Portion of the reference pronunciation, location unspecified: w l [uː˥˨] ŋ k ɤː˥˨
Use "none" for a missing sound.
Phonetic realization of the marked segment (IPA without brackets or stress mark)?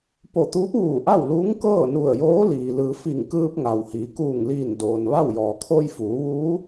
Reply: uː˧˥